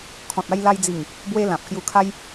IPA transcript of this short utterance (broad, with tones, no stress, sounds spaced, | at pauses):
kʰ ɔ̃˨ t̚ a˧ j l a˧ j d͡z i˨˩ ŋ | b w e˧ l ã˨ p̚ k j u˧ kʰ a˦ j